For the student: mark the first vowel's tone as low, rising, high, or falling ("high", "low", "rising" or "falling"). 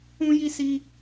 high